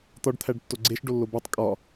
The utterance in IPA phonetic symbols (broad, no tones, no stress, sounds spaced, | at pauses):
t̪ ɒ ɖ t̪ʰ æ ɖ tː o ɡ͡ǀ e ʃ ɖ o lː o b o tˤ kʼ ɒ